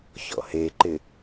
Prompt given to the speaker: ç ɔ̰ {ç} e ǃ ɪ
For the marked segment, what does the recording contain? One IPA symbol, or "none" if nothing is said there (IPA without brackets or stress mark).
h